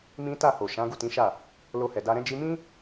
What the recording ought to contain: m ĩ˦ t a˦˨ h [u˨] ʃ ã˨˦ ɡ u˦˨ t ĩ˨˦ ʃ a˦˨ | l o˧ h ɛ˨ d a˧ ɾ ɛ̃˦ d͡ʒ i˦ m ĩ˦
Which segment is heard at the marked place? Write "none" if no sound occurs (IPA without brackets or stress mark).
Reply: o˨